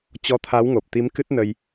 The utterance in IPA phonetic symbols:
t͡ɕ ɔ˧ t̪ʰ a˨˦ w ŋ o˨˩ p̚ t̪ i˨˦ m k ɨ˦˥ t̚ n ə˧ j

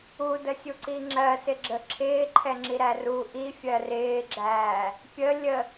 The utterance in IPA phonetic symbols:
u d ə sʲ u ǀ i ŋ͡ǁ ɜ s ɪ ɡ͡ǁ ə ǁʰ ɪː ǃʰ ɛ ŋ͡ǁ i ɾ æ r u ʔ i fʲ ɜ r ɪː ɡ͡ǁ æː | pʲ ə lʲ ə

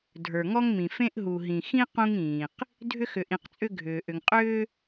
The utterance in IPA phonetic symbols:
dʱ ə˞˨ ŋ ɔ˦ ŋ m ĩ˨ f ẽ˦ ʔ ɦ u˨ ɦ ĩ˨ x ĩ˦ q ũ˦ ŋ ĩː˨ q | dʱ ʏ˦ x ʏ˨ ʔ ĩ˨ q t͡sʼ ʏ˦ ɡʱ ʏː˨ ʔ ʏ˨ ŋ qʼ ʏː˦

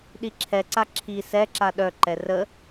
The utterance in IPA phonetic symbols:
ɗ i ǁʰ ɛ ǀ a ǁʰ i s ɛ ǁ a ɗ œ ǃ ɛ r ə

